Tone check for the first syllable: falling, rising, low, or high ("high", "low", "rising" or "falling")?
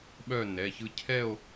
falling